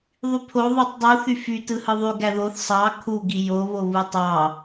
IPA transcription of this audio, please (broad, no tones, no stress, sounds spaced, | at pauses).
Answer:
ðˤ y pʰ o ðˤ u tˤ dˤ u θ y f y t ɯ h ɯ ðˤ y ɡ æ ð o θ sˤ ɑ kʰ u ɡ i j o β o β ɯ tˤ ɑ